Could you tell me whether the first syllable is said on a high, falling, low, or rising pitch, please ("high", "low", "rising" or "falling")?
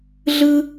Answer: high